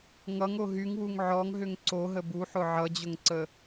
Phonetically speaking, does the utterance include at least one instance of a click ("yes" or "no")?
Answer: yes